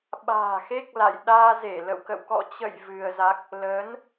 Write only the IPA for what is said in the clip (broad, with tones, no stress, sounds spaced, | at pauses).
ɓ a̤ː˨˩ x e˦˥ k̚ l a̰˧˨ j ɗ aː˧ z e˧˩ l ə̰˧˨ w k ə̰˧˨ w k ɔ̰˧˨ t͡ɕ ə̰˧˨ j v ɨ˧ ə̯ z a˦˥ k̚ | l əː˨˦ n